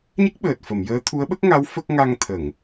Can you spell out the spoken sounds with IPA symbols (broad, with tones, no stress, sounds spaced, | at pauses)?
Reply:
ɲ ə˦˥ k̚ ɓ əː˨˩ t̚ f ə˨˩˨ m j əː˧˥ t̪ʰ u˧˥ ə̯ ɓ ə˦˥ k̚ ŋ a˧˥ w f ə˦˥ k̚ ŋ a˧ ŋ t̪ʰ ə˨˩˨ ŋ